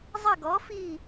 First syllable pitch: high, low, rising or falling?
falling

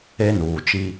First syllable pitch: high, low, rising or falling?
high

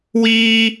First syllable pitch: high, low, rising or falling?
high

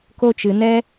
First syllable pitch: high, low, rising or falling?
high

